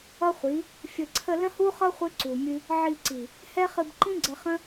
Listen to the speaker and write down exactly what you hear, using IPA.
ʌ˦χʷi˨˦ | fʲə˨ǀʰə˧ lə̃˦hu˦χʌ˦ χʷɨ˦ǀu˨mʲɨ˦ | ʕi˧ǀi˨ | hɛ˦χɨ˧b ǃĩ˦ɡ͡ǀə˧χə̃˦

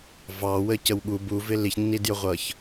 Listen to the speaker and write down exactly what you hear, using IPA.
vɑwəcəw ɠu buvɪ liçnːidjʊʁʷʌç

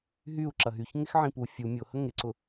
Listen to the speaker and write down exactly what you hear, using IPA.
ɦyu̯ ǁɐɦyç ŋɪxʕĩpu fʲu mʲʊ həŋeǀʊ

